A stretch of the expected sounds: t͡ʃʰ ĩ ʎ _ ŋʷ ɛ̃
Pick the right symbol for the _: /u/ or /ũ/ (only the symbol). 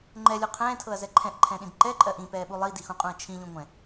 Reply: ũ